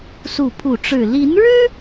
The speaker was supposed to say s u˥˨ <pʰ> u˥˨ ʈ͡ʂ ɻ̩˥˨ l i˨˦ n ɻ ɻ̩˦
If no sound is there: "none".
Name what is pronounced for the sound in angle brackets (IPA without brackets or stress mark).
pʰ